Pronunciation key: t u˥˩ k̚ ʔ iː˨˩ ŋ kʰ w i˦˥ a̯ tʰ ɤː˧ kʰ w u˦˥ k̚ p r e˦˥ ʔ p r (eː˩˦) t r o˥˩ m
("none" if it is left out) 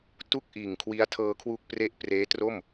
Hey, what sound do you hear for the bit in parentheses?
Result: eː˦˥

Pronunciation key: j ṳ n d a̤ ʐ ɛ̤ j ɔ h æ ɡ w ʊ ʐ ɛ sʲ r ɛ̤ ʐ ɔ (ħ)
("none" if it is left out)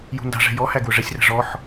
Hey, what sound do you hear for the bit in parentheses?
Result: ħ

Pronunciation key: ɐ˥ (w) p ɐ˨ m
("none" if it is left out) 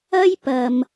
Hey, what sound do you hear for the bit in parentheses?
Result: j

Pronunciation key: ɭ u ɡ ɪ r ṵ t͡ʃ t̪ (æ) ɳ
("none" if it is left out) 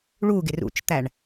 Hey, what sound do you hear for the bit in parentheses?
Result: æ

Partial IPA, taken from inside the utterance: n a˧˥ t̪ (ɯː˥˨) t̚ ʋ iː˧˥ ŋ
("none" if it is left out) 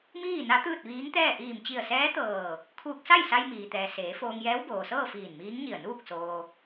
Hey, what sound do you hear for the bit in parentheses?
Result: ɯː˥˨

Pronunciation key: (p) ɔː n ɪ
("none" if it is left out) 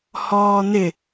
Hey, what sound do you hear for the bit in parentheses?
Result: h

